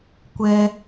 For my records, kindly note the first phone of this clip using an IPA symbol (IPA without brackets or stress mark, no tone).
kʷ